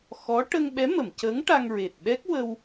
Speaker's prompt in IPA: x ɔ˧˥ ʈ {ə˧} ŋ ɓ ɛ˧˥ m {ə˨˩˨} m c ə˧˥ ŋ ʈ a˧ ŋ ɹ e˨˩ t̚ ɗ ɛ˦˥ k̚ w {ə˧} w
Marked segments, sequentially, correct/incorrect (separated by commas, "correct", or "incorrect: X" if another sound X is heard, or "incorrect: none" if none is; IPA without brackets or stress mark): correct, correct, correct